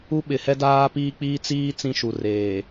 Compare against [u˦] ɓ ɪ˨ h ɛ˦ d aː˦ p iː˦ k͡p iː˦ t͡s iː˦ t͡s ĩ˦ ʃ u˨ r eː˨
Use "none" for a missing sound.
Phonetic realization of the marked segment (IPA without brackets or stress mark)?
u˦